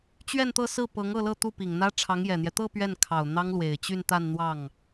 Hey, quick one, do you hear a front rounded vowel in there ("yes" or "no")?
yes